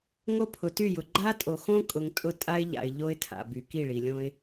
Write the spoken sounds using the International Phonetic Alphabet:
ŋ o˦ pʰ ʊ˨ t y˦˨ j ʊ˨ ɡ͡ǃ a˦ tʼ o˨ x õ˦ kʼ ʊ˨ ŋ tʼ ʊ˦ tʼ a˦ ɪ̯ ʎ a̰˨ ɪ̯ ʎ o˦ ɪ̯ tʰ a̰˨ b y˨ k i˦˨ ɭ i˨ lʲ õ˦ ɪ̯

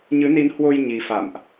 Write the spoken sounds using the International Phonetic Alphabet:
ɲ ɨ˨˦ n i˨˦ n h w o˧ j ɲ i˨˦ f a̰˧˨ m ʔ

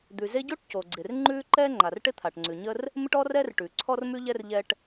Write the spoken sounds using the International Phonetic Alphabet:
d̪ ʉ˩ z e˥ ɟ o˥ ʈ c o˩ ɡ͡ǀ ɪ˩ r ŋ͡ǃ ʉ˥ ǃ ɛ˥ ŋ͡ǃ a˩ r ʈ ɪ˥ t̪ʰ a˩ ʈ ŋ͡ǀ ʉ˩ ɲ ə˥ r | m ɪ˥ ʈ ɔ˥ r ɛ˥ r ʈ ʉ˩ ǀʰ ɔ˥ r m ʉ˥ ʎ ɛ˥ r ʎ ɛ˥ ʈ

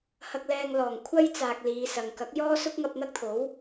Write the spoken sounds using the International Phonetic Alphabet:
h ɐ˧ k̚ l ɛː˧ ŋ l ɔː˨˩ ŋ kʷʰ ɐ˥ j t͡s aː˨ k̚ l iː˨˧ s ɐ˨ ŋ k ɐ˨˥ k̚ j ɔː˥ s ʊ˥ k̚ ŋ ɐ˧ p̚ n̪ ɐ˥ k̚ t̪ʰ o˨˥ w

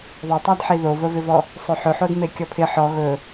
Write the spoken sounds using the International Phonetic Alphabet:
ðˤ e tˤ a d ħ i ð o v ə v ɪ v ɔ | sˤ ɵ ħ ɵ ħ o d m e kʲ ɔ pʰ ɪ ħ ɔ ɣ ɵ

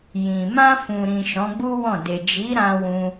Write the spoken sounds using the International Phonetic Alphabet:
j ĩ˨ m ã˧ f ũ˨ ɾ ĩ˨ ʃ ɔ̃˨˦ ɡ͡b u˦ w ɔ̃˦˨ d e˨ d͡ʒ i˨˦ ɾ ã˧ w ũ˧

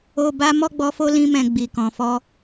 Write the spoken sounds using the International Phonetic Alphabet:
o˧ b a˦ m ɔ˦˨ ɡ͡b ɔ˨˦ f o˧ l ĩ˧ m ɛ̃˨ ɡ͡b i˨ k ɔ̃˨ f ɔ˧

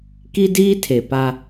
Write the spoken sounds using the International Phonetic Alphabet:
k i˦ d iː˦ tʰ e˨ p a˦

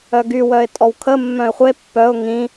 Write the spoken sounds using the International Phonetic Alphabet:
œ ɡ y w œ ɪ̯ tʼ ɔ w kʰ ə mː œ̃ ɪ̯ χʷ e pː œ ʊ̯ ŋ ĩ

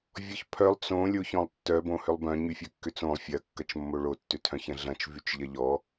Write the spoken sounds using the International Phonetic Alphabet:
vʲ ɔ ç pʰ œ lˠ t͡s õ lʲ o ç ɔ̃ lˠ tː œ b õ h ʏ lˠ b œ̃ ɲ y fʲ œ kː ʏ t͡s õ lˠ fʲ ɐ kː ɐ t͡ʃ mː o ɭ o tː ʏ tʰ œ̃ ç ɐ̃ ɮ ɐ̃ t͡ʃ v y t͡ʃ ʎ ɐ ʎ ɔ

